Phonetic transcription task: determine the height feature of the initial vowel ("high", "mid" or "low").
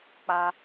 low